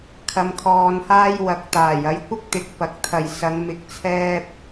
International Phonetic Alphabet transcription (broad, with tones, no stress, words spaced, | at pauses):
kʰɐ˧mkʰɔː˧nhaː˥j wɐ˨˥k̚t̪aː˨˩j ɐ˨˥jkʷɪ˥k̚t̪ɪ˨k̚ pɐ˨k̚ t̪ʰɐ˨jsɐ˨˧ŋ mɪ˨˥k̚t͡sʰɛː˧p̚